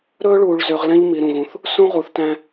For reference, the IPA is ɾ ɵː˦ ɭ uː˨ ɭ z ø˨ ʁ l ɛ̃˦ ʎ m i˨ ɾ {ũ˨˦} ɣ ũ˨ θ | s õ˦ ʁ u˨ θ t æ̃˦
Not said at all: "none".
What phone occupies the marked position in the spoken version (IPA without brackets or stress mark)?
ũ˨